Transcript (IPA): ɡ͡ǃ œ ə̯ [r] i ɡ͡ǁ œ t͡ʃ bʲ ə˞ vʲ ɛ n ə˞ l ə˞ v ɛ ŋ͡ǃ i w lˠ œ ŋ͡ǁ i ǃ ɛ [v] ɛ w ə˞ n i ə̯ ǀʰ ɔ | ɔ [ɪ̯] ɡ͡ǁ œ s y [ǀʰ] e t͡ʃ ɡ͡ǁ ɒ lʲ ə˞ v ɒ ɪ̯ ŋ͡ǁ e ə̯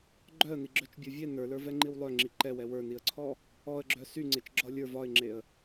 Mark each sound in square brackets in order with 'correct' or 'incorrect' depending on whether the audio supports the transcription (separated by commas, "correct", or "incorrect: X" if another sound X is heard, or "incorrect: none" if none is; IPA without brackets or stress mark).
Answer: incorrect: n, incorrect: w, incorrect: ə̯, incorrect: ŋ͡ǀ